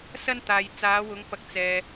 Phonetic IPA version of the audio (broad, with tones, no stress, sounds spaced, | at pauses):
s ɐ˥ n t̪ aː˨ j t͡s aː˨˧ w ʊ˨˧ ŋ p ɐ˨˥ k̚ t͡s ɛː˨